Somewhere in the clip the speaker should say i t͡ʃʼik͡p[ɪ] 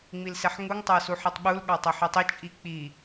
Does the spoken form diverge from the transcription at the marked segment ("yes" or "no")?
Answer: yes